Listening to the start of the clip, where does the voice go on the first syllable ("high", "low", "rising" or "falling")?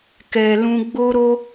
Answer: low